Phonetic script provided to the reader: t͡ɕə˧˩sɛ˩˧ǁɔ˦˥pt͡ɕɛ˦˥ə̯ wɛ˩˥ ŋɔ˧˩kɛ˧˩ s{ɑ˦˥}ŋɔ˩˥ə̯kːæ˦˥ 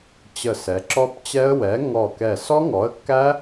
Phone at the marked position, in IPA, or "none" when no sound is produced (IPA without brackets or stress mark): ɔ˦˥